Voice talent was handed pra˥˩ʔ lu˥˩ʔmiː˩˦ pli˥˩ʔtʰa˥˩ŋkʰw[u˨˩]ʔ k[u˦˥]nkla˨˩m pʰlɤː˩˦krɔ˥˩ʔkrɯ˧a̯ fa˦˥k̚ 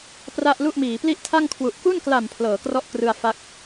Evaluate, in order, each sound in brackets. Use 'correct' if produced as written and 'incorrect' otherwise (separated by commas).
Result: correct, incorrect